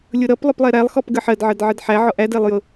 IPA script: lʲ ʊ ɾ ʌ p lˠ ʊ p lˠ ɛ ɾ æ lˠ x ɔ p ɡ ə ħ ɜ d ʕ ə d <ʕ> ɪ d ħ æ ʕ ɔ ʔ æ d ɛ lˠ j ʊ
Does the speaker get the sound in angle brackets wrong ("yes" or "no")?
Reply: no